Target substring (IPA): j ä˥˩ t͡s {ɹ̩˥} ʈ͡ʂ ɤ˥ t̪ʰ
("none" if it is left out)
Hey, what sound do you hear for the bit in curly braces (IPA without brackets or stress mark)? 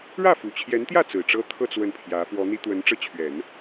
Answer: ɹ̩˨˩